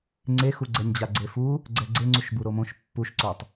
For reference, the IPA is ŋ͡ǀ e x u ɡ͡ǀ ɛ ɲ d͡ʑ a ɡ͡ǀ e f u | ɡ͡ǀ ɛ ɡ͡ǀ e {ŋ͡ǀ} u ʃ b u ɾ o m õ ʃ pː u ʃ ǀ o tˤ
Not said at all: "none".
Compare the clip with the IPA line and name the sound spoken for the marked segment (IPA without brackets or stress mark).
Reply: ŋ͡ǀ